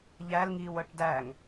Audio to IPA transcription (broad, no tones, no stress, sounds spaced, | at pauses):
ʎ æ l ŋ iː w ɤ ʈ d æ ŋ